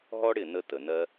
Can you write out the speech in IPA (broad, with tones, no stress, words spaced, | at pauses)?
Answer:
ɦɔ˦ɽɪ˦˨nə˧ tə˨nɜ˧